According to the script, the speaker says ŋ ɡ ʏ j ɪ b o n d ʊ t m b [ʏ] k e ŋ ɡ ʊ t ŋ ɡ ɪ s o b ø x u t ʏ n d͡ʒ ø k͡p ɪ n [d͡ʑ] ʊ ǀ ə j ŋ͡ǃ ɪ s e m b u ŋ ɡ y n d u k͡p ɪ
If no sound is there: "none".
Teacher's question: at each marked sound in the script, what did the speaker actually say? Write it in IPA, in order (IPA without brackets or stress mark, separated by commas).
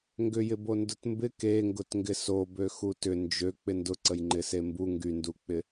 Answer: ɪ, d